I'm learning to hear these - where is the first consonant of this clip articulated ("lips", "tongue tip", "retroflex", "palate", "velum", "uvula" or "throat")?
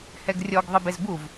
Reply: throat